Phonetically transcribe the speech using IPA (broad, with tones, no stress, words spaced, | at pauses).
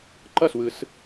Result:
ǃʌ˥˩swɯ˨˩˦s